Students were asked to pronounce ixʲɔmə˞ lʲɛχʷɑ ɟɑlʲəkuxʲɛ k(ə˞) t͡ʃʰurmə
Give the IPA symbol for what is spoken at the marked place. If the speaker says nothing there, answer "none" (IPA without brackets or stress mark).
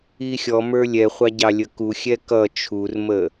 ʌ